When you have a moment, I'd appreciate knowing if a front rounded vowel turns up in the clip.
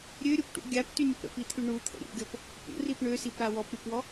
yes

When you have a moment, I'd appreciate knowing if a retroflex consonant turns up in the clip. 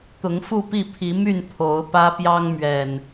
no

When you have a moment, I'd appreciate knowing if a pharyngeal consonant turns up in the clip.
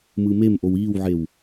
yes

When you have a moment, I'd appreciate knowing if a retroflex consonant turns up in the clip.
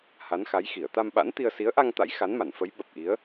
no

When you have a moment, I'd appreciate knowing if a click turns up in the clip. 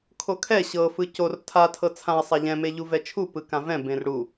no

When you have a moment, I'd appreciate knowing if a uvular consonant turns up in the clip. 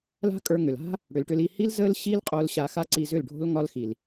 yes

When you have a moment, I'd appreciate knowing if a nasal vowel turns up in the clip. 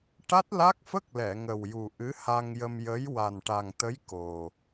no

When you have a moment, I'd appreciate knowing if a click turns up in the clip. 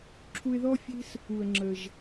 yes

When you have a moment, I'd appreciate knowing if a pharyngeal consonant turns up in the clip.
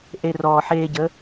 yes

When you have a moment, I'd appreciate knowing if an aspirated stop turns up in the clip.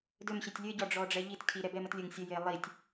yes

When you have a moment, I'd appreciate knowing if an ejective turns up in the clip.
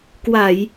no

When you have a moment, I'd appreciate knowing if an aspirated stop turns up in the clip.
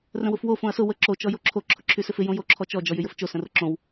yes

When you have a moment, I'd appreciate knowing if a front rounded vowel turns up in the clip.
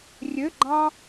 yes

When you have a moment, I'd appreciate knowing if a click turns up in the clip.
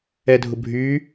no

